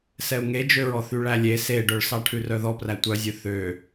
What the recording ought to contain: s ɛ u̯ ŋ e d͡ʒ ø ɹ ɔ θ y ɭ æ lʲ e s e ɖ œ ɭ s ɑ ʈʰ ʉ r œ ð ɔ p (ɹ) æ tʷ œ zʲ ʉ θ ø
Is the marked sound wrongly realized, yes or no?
yes